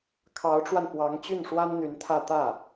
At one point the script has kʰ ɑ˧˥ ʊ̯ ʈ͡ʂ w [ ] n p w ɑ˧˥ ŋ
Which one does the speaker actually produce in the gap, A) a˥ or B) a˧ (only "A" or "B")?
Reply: B